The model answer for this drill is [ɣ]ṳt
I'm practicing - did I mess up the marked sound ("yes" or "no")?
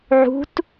yes